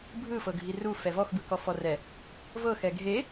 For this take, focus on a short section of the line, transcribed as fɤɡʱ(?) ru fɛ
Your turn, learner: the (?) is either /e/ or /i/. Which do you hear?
i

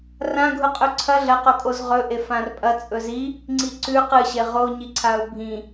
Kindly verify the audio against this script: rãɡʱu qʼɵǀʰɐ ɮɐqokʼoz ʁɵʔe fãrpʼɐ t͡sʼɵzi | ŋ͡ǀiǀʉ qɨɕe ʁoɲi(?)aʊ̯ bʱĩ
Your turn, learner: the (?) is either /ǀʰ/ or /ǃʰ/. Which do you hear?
ǀʰ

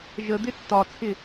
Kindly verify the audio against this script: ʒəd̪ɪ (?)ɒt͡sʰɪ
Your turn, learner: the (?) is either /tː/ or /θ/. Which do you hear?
tː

